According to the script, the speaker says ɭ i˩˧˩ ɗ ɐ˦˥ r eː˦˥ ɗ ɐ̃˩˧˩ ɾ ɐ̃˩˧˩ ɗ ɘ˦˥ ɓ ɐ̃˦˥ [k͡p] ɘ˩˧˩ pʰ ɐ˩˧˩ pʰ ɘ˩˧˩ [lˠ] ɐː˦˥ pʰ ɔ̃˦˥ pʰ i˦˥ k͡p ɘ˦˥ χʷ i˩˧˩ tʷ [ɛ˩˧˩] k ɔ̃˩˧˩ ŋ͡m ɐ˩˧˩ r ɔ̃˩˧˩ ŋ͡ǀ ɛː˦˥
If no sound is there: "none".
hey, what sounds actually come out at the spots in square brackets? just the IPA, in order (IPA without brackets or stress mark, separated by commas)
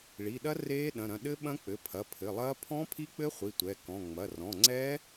k͡p, lˠ, ɛ˩˧˩